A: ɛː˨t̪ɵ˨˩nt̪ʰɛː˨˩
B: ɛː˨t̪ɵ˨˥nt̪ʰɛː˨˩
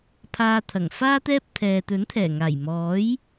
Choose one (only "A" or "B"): B